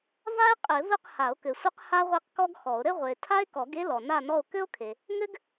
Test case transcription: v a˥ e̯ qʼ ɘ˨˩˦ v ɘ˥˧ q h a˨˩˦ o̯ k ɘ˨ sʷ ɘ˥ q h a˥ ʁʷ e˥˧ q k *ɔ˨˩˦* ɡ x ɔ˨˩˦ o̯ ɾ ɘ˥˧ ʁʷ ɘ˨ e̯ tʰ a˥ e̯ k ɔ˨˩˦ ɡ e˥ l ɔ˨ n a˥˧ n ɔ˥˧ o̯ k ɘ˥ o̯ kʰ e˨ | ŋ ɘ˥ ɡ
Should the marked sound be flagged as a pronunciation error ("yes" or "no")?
yes